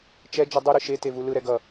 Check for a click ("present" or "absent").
absent